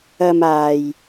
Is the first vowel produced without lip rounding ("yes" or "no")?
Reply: yes